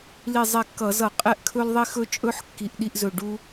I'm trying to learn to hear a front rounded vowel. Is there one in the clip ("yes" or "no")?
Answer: no